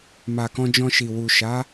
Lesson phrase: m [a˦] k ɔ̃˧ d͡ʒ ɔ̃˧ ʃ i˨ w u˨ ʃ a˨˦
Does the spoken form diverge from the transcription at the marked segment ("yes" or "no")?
yes